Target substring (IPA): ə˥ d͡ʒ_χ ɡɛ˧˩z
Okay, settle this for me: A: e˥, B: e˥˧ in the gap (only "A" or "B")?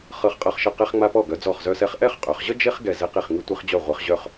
A